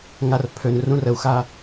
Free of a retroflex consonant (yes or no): yes